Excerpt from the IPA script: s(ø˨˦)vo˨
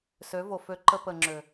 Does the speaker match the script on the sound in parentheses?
yes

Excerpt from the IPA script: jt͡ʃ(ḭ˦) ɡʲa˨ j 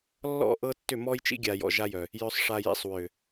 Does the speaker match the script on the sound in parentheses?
yes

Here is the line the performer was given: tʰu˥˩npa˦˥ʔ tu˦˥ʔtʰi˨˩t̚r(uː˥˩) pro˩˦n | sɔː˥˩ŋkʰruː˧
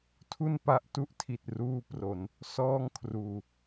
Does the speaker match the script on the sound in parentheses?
no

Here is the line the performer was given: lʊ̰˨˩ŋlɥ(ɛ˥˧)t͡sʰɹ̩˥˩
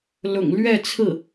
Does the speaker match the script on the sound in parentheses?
yes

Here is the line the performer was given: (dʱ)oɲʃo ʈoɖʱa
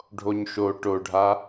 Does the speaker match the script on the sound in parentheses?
no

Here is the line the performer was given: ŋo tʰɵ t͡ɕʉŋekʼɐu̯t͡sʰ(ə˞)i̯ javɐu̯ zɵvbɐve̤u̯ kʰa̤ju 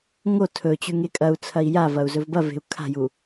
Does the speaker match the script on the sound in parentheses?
no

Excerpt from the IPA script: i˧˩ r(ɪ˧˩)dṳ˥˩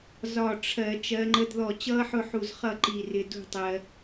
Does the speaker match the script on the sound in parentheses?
no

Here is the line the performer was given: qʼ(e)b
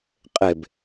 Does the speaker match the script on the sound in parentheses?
yes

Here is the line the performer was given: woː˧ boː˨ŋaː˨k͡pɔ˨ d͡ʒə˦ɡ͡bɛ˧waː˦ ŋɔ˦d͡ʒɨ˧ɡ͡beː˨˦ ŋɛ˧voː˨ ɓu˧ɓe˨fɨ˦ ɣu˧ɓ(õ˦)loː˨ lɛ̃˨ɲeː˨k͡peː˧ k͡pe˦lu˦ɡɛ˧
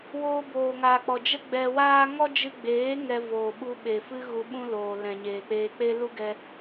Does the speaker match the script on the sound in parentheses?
no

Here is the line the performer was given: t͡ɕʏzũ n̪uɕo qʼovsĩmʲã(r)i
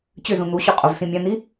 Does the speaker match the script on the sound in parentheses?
no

